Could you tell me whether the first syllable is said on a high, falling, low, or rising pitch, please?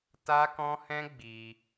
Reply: high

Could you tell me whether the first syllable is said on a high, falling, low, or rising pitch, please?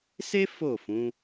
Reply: high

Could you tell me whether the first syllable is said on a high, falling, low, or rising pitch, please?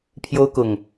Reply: high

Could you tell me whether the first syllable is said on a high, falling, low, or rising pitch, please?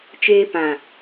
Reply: high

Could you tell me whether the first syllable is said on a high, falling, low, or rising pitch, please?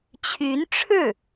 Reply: rising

